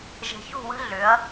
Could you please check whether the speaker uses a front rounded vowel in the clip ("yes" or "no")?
yes